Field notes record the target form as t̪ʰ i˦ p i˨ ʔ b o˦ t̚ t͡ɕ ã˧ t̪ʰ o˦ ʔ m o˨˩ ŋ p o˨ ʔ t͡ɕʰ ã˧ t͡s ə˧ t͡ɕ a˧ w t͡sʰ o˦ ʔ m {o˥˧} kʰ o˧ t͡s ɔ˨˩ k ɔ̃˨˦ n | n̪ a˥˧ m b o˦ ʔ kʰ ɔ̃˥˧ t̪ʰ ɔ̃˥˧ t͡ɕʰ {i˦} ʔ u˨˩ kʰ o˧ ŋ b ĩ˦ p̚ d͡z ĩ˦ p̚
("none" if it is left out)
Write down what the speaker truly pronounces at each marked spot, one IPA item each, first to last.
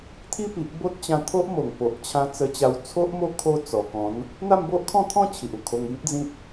o˦, i˨

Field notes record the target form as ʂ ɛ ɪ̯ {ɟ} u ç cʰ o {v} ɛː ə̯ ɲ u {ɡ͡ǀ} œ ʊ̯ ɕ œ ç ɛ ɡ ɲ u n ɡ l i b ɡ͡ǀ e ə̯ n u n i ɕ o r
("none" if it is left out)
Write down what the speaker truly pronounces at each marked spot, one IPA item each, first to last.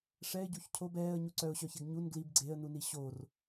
ɟ, b, ǀ

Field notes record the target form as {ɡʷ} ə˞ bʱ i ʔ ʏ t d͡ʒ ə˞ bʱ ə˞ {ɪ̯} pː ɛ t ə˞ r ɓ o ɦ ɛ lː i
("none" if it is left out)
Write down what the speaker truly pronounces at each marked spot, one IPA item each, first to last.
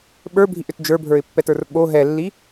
ɓ, ɪ̯

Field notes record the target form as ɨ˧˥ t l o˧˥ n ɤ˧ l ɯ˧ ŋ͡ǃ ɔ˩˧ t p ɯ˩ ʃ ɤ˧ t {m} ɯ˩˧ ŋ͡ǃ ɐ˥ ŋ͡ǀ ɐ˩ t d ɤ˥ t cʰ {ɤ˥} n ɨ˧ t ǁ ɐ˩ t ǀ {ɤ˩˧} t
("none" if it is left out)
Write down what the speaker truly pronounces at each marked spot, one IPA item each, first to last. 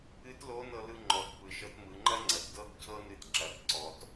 m, ɤ˥, ɔ˩˧

